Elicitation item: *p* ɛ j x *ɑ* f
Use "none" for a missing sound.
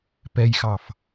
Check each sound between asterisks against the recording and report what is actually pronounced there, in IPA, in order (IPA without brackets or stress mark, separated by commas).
p, ɑ